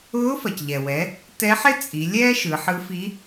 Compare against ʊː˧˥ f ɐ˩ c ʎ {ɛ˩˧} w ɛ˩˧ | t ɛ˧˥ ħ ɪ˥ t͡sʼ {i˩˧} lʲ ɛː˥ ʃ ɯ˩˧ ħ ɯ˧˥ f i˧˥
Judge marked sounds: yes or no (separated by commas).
no, yes